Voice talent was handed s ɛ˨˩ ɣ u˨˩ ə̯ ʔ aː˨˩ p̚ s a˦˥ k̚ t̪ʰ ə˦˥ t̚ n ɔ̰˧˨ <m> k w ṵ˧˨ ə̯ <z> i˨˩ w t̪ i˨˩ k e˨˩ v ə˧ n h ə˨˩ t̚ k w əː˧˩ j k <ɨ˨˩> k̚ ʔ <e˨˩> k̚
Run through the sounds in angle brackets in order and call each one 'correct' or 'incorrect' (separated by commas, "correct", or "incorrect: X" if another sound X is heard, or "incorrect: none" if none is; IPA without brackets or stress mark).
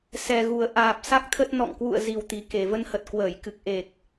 incorrect: ŋ, correct, correct, correct